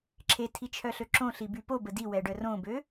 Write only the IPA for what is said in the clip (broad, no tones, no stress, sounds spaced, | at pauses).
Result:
ǁʰ e tʰ i t͡ʃʰ œ ɬ ø ǁ õ ɬ i b y p o b ə d i w ɛ ɖ œ r õ b ø